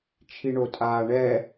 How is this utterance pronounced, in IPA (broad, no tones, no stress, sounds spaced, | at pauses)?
t͡ʃʰ i ɳ o tʼ aː ɳ ɛ